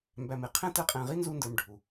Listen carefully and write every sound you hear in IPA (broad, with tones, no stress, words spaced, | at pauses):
mbæ˨mɪ˩ qʰɛ̃˥tə˦qʼɛ̃˨ʁi˥ nzu˦ndə˞˨mɖʱu˩